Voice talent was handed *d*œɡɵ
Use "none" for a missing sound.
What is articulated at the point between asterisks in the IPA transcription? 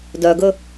d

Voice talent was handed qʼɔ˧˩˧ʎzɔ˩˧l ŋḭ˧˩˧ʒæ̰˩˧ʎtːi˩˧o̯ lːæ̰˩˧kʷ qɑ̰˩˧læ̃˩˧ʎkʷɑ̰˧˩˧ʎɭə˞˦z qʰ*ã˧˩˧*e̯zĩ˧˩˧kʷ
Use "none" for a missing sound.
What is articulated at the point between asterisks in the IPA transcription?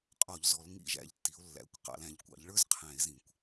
æ̃˧˩˧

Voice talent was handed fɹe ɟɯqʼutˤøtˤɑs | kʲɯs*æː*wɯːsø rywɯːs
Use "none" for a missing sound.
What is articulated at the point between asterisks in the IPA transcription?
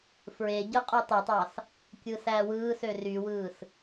æː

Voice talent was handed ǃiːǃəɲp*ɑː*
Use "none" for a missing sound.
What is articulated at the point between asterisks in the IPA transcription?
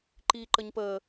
əː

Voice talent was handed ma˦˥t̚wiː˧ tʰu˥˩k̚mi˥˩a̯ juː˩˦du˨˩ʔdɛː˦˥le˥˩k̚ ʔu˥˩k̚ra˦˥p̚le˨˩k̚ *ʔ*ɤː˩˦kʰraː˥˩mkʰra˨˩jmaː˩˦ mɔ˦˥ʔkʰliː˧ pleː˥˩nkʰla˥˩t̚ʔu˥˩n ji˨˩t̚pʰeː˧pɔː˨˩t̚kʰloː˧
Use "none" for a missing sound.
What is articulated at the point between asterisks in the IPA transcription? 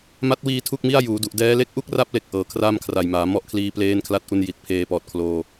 ʔ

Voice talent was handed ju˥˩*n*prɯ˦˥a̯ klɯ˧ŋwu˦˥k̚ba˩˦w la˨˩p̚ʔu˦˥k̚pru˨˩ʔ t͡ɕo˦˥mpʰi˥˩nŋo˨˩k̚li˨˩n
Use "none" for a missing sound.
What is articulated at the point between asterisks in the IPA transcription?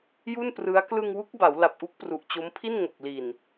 n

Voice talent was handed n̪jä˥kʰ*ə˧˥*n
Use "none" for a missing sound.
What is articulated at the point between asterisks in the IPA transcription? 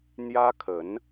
ə˧˥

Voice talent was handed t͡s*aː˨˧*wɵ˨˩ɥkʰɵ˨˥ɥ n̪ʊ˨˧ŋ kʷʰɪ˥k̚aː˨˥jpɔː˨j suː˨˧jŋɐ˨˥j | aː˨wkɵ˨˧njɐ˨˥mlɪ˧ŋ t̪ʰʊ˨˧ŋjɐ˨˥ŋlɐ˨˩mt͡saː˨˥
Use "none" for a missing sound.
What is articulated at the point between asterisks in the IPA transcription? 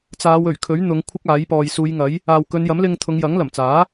aː˨˧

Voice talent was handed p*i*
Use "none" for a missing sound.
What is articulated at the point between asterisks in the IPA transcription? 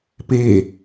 e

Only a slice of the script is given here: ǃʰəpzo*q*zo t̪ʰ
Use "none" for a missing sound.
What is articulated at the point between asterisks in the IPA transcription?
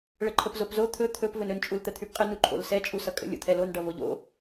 p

